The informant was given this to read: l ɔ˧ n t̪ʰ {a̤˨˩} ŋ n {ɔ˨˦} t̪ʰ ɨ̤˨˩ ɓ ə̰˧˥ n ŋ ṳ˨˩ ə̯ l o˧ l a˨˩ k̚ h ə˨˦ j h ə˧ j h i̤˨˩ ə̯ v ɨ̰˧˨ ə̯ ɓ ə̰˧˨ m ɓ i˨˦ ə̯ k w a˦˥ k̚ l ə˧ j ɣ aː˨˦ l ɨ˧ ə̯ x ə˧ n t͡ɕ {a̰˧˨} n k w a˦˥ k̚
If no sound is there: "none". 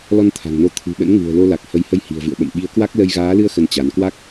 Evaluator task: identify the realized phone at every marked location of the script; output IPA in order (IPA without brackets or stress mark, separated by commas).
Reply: a̤˨˩, o˨˦, a˨˦